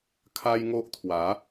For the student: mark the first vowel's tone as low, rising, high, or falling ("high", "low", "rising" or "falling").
high